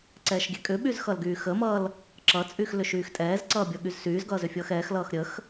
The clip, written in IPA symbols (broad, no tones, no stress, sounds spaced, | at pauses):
ǀ ɛː ʃ ɡʲ ɛ kʼ ʏ ɓ y z x ʌ l ɡ yː x ə m ʌː l | ǁ ʌ t͡sʼ y x l ʏ ʃ yː x tʼ ɛː z ǀ ʌː bʲ ʌ ɠ y z s yː z ɡ ʌː z ʏ fʲ ʌː x ɛː x l ʌː x ɾʲ ə x